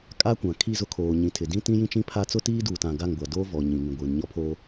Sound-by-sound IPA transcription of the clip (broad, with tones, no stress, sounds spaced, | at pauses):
kʼ a˦ kʷ ã˨ kʰ i˦˨ z ʊ˦ kʰ oː˨ ɲ ĩ˨ tʰ ɪ˨ d ĩ˦ t ĩ˦ j ĩ˦ t͡ʃ ĩ˦ pʰ a˦ t͡s ʊ˦ t iː˦ d uː˨ t ã˨ ɡ a˦˨ ŋ ɡʷ a˨ d oː˦ v ɔ˨ ɲ ĩ˨ ŋ ĩ˨ ɡʷ iː˨ n ɲ ɔ˦ pʰ oː˦